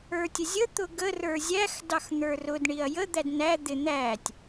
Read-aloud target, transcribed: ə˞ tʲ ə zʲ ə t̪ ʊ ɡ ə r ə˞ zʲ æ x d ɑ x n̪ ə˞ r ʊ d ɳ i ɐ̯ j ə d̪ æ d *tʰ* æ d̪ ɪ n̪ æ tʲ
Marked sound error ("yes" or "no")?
yes